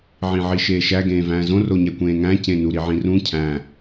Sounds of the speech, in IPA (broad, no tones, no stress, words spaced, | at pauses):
ʕĩʕiʃeːʃæ ɡẽːvæ̃ːzõ roɲækʷẽːŋæ̃ cẽnu ɾiʕĩrũ cʰæ̃